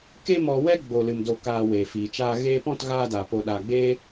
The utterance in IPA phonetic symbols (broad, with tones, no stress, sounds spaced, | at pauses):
k e˦ m ɔ˧ w ɛ˦ ɡ͡b o˨ l ɨ˨ m d o˨ k aː˨ w eː˨ f iː˨ t͡ʃ aː˦ ɣ eː˧ p ɔ̃˦˨ t ɣ aː˦ d aː˨ p o˧ ɗ aː˨ ɡ͡b eː˦